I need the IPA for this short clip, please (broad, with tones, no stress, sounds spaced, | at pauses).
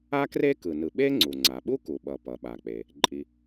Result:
a˥ k r e˥ k ɯ˩ n ɯ˩ ɓ e˥ ŋ͡ǀ u˩ ŋ͡ǀ a˩ ɓ u˥ k u˩ ɓ ʌ˩ p ʌ˩ ɓ a˩ k͡p e˩ | ǃʼ i˩